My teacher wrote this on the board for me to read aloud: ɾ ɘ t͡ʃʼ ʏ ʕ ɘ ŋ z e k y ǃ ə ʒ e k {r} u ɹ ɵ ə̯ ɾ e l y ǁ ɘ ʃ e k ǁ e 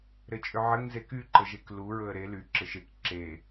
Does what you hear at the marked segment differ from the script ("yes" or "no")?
yes